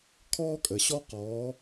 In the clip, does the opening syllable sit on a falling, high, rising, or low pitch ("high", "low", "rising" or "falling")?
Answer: high